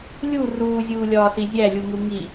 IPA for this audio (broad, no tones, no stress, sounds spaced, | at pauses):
lʲ u r uː zʲ uː lʲ ɒː s i zʲ æ lʲ u ŋ u ŋ i